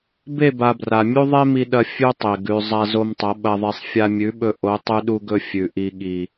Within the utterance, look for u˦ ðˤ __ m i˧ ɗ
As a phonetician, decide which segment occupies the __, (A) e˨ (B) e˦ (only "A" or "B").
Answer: B